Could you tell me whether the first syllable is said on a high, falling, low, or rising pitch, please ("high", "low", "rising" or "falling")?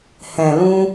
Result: low